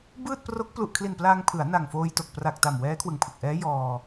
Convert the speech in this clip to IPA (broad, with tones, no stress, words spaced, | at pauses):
bɯː˥˩t̚pro˦˥k̚ plu˨˩ʔkʰli˨˩nplaː˧ŋ pʰɯ˩˦a̯ na˨˩ŋfoː˧jto˨˩k̚ pra˨˩k̚ta˨˩m wɛː˦˥kʰwɯ˨˩ŋpʰɯ˨˩k̚ʔɛː˦˥ jɔː˧